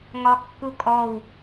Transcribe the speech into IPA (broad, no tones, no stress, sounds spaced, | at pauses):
ŋ ɒ kː u kʼ ɔ w